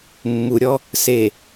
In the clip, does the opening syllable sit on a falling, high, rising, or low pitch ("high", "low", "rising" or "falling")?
low